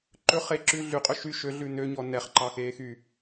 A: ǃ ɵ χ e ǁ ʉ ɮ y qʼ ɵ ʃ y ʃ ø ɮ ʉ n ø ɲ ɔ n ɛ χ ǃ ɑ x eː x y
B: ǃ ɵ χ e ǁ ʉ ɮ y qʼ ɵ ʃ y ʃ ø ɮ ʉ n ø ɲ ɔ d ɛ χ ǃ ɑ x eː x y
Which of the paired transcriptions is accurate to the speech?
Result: A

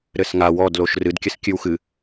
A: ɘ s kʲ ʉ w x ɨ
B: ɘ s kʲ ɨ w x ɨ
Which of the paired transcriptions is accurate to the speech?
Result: B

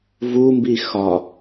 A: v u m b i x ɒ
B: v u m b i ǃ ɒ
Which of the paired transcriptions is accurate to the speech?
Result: A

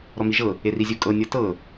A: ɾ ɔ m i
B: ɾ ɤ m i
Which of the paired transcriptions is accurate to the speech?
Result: A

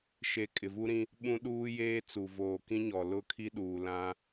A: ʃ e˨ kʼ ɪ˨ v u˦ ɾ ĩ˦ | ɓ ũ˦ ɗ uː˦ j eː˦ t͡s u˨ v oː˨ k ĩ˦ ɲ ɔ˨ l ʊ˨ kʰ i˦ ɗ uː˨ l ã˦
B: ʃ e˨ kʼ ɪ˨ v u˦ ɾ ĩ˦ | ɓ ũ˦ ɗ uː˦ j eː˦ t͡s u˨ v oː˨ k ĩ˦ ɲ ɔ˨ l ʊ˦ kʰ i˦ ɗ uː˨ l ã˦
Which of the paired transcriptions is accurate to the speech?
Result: B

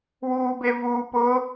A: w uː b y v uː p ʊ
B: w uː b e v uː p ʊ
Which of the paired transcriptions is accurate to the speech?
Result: B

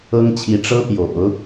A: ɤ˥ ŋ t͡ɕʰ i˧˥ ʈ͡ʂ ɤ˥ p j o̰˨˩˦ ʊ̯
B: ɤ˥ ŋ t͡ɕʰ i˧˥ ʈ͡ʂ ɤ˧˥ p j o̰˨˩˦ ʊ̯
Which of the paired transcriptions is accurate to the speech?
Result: A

